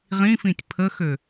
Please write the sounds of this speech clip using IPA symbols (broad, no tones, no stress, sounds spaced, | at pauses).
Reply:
ʁ ĩ f ĩ tʲ pʰ ə x ø